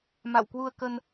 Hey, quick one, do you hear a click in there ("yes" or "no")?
no